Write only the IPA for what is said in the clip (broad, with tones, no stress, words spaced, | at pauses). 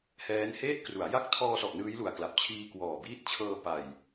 hɛː˦˥n heː˥˩t̚kru˩˦a̯ ja˦˥k̚tʰɔː˧sɔ˨˩ʔ nɯː˦˥jlu˨˩a̯kla˨˩p̚t͡ɕʰiː˧ kwɔː˨˩biː˦˥t̚t͡ɕʰɤː˧pa˨˩j